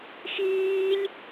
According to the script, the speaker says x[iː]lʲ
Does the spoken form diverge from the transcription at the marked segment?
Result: no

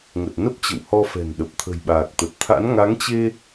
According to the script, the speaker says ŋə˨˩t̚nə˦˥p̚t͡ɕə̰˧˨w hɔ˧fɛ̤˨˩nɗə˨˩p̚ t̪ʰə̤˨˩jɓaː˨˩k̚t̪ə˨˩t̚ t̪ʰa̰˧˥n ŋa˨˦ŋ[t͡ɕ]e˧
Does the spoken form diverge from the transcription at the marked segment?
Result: no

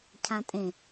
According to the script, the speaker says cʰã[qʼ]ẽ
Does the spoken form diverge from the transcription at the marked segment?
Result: yes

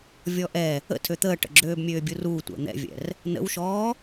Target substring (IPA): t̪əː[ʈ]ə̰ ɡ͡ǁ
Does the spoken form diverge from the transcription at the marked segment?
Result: no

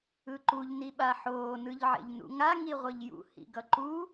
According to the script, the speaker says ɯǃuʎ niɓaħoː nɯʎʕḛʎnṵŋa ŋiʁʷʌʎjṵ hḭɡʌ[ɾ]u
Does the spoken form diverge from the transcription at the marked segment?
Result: yes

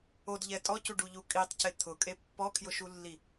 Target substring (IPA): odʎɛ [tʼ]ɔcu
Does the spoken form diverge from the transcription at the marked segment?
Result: no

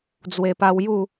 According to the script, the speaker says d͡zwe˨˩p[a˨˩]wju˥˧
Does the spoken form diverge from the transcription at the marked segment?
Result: yes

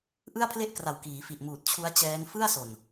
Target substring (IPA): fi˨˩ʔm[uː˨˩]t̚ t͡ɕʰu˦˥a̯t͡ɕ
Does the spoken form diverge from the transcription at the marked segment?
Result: no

